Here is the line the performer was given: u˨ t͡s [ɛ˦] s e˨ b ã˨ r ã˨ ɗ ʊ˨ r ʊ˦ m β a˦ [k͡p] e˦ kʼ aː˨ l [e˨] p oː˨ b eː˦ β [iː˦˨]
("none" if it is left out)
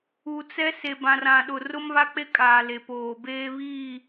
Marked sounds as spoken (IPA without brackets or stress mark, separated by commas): ɛ˦, k͡p, e˨, iː˦˨